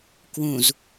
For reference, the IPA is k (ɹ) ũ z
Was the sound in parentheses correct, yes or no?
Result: no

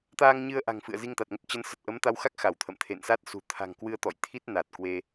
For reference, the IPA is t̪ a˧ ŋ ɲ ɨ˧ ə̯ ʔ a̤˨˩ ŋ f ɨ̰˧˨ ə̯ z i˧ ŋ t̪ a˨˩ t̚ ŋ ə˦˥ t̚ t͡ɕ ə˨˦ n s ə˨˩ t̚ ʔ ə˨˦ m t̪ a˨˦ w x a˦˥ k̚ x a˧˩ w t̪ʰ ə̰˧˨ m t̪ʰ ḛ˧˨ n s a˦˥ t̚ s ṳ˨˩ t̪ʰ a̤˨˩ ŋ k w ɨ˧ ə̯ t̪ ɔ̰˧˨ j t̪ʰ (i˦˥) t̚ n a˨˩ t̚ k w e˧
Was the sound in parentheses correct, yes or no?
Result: yes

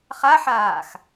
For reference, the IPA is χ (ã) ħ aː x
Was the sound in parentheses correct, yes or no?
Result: no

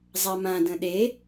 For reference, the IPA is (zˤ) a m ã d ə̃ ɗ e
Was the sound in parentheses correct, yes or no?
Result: yes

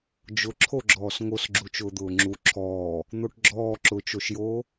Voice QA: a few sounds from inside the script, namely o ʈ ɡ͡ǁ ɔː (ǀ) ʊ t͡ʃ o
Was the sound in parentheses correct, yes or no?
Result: no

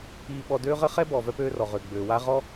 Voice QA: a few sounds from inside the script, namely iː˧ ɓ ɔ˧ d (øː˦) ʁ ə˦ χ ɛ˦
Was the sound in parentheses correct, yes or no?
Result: yes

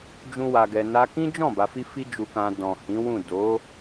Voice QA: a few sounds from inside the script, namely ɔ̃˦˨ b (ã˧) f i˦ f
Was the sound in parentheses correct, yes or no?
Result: no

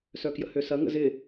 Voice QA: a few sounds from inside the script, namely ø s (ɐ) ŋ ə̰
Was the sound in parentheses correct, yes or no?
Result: yes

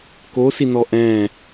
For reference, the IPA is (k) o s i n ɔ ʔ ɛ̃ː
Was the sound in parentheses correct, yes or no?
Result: yes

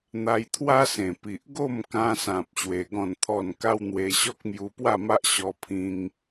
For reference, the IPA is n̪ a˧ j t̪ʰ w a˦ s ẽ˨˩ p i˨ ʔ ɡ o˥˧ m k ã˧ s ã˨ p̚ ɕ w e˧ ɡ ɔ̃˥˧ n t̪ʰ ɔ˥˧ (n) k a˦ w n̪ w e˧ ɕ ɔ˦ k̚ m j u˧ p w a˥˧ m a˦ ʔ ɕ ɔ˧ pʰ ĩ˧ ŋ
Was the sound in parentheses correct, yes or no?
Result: yes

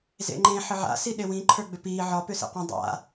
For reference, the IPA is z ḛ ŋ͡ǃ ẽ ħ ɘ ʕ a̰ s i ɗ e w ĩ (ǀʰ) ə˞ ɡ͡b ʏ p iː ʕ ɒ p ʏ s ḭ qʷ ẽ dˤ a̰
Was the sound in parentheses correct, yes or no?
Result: no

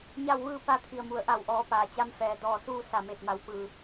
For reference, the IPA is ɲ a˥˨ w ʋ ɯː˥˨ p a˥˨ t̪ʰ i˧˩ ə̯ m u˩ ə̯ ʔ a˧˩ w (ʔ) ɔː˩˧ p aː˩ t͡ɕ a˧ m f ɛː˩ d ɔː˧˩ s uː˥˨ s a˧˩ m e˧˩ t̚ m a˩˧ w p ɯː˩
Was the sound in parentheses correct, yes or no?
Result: yes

